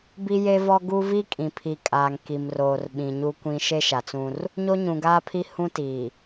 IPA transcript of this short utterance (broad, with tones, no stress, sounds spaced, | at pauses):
b i˦ j e˦ v ɔ˦ ɡ u˦ v i˦ kʼ ĩ˨ pʰ i˨ kʼ aː˨ ŋ k i˨ m r oː˨ r ɓ ĩ˨ ɲ u˦ kʷ ĩ˦ ʃ e˦ ʃ a˨ t͡s ũ˦ r | ɲ o˦ ɲ ũ˨ ɡ aː˦ pʰ i˦ h ũ˦ t iː˨